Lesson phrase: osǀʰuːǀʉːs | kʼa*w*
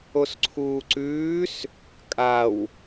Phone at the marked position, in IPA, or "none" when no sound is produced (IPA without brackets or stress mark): w